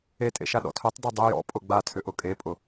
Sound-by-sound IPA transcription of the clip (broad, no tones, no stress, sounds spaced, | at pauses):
e tʼ ḛ ʃ a ɗ ɔ̰ tʰ œ tˤ d œ dˤ ʏ j ɔ̰ pʼ ʊ ɡ͡b a tʰ ʏ ʔ ʊ kʼ e pʼ ʊ